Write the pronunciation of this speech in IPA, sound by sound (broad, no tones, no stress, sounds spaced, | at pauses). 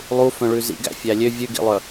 lˠ u f œ̃ ɭ ʉ z ḭ ɡ æ̰ fʲ æ lʲ ø vʲ ʉ ɡ ḭ lˠ œ